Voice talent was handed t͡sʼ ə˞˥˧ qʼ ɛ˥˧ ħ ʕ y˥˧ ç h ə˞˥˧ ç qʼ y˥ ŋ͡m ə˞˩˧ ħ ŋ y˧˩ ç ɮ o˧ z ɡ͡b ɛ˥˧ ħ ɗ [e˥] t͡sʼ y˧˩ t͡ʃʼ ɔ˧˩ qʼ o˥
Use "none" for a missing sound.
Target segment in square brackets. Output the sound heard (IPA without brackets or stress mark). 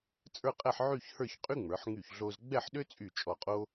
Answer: ø˥